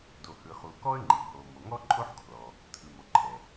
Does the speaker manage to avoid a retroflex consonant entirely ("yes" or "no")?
yes